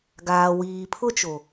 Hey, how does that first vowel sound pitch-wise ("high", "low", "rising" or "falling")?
low